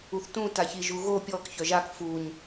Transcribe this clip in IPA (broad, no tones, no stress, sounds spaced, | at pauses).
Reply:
u θ t ũ t a ç i ʒ u ɣ o pʲ ɔ k ç œ ʒ a k f u ɲ